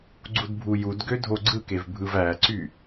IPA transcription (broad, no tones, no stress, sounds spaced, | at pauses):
ɡ͡ǀ u d bʱ u j u d ɡ ø dʱ o ɡ͡ǀ ɯ k e v bʱ ɯ v æ ǀ y